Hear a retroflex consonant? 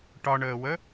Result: yes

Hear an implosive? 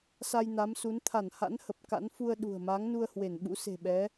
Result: yes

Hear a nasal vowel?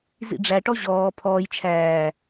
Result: no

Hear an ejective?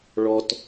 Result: no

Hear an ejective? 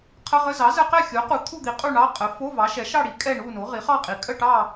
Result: yes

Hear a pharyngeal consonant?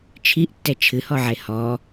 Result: yes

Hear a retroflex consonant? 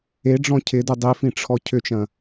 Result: yes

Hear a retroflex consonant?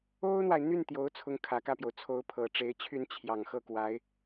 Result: yes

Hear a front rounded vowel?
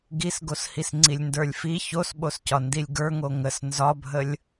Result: no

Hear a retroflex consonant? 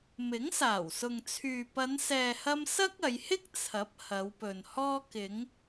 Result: no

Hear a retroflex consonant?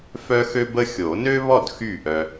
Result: no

